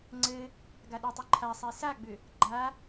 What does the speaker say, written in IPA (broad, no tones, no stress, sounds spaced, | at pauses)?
ŋ͡ǀ ɘ | ɡ a ɗ ʏ tˤ e ǃʰ a sˤ e s a ɡ͡b ʏ | ɡ͡ǃ a